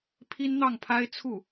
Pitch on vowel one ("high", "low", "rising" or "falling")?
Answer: high